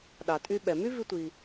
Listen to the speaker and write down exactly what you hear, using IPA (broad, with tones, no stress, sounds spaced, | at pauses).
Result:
ɗ ɑ˩ tʼ y˧ ɓ ɛ˩ m y˥ v i˧ tʷ i˩